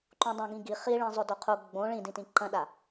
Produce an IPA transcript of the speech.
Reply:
ǃ ũ dˤ ã ɡ ĩ ɡ i χ i ɭ ĩ zˤ o d o qʰ u ɡ͡b õ ɭ ĩ d ĩ t ĩ ǃ ɐ̃ ɗ a

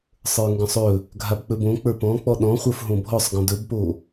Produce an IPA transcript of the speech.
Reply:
sˤ ə˞ ŋ ɡ ɔ̃ sˤ ɵ | ɡʱ a b k͡p ɵ b õ k͡p ə˞ p ɔ̃ k͡p ɔ ɗ ɔ̃ χʷ ə˞ f ɦ õ bʱ ɔ sˤ ɡ ɔ̃ d ɵ b p o

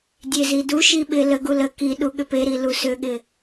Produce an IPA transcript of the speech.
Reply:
dʲ e z i d u ʃ i ɓ ɪ l ə ɡ u l ə k i ɗ u ɠ ʏ p e ɾ i l u s ʏ ɠ ɪ

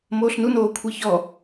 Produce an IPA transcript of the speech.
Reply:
m oː ɬ n u n oː kʷʰ i ç ɔ

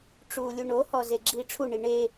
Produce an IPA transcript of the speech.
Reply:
ʈ͡ʂ uː lʲ u ɳ o h ɔ z e ɡ͡ǁ iː ʈ͡ʂʰ u ɳ i ɳ e

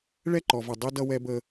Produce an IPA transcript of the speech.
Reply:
ɭ ɛ˦˨ ǃ ɔ˨ v ʌ˨ dˤ i˦ d ʌ˦ w ɛ˦ b ə˦

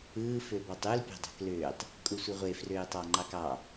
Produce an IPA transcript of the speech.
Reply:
ɯː f ø b ɑ tˤ u l pʲ ɑ̤ dˤ ɑ̤ k l øː tˤ | kʼ u sʷ i ʁʷ e f r øː tˤ ɑ ŋ͡ǃ ɑ k ɑ

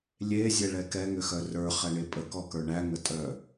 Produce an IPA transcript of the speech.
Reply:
lʲ e zʲ ɛ ɭ ɛ k ɛ ŋ ʏ x œ r ə˞ χ ɛ ɳ e pʼ ə k ɔ k ə˞ ɳ æ ŋ ə tʼ œ

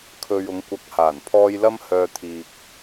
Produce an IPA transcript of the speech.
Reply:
kʰ ɵ˨ ɥ ʊ˨˧ ŋ kʷ ɐ˨˥ k̚ h aː˨˩ n pʰ ɔː˧ j l ɐ˧ m h œː˨ t̪ʰ iː˨ k̚

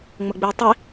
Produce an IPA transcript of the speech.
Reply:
ŋ͡m ə ɡ͡b i tˤ i

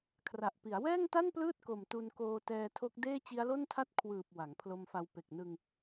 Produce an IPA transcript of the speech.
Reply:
kʰ r a˨˩ ʔ p i˩˦ a̯ w ɛː˥˩ ŋ t a˥˩ n p l ɯː˥˩ t̚ k o˨˩ m t u˧ n k oː˧ t ɛː˧ tʰ o˦˥ k̚ d eː˥˩ t͡ɕ i˦˥ a̯ l o˥˩ n tʰ a˥˩ t̚ kʰ w ɯː˨˩ p̚ w a˩˦ ŋ pʰ l o˧ m f a˧ w p e˨˩ k̚ n ɯ˧ ŋ

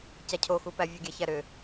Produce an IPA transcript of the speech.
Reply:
c æ cʰ o x u p æ vʲ u ɡʲ æ ç æ ɾ ʏ

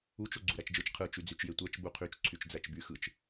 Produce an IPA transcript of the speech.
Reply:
u t͡ʃ o ɡ͡ǀ u ɾ æ t͡ʃ d͡ʒ ɯ t͡ʃ qʰ ɯ t͡ʃ y d͡z y t͡ʃ j e tʷ æ t͡ʃ b u qʰ y t͡ʃ ǀʰ y t͡ʃ d͡z æ t͡ʃ b y x ɯ t͡ʃ

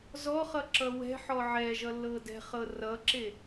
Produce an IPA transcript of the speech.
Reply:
z ɔ χ ʌ ǁ ʌ w ɛ̤ ħ ɔ ʕ ɛ ʒ ʌ lː ɤ d ɛ̤ χ ɤ r ʌ ǁ e

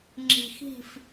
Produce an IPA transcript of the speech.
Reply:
ŋ͡ǁ i̤˨ x i̤˦˨ f

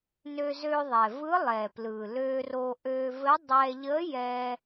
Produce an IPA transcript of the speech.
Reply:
n ø˧ z ø˧ ðˤ ɛ˩ v ɯ˧˥ lˠ ɛ˩ p l ɯ˩ l ø˧ r o˧ ʔ ø˧ v ɘ˧˥ dˤ ɛ˧ ʎ ə˧˥ j ɛ˧

